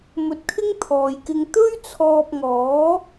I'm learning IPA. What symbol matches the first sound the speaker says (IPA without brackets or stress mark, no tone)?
m